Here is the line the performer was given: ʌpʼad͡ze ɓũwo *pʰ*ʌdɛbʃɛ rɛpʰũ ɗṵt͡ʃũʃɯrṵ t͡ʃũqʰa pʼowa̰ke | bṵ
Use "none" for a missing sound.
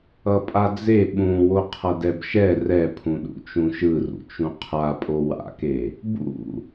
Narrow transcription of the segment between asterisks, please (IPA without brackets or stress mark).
qʰ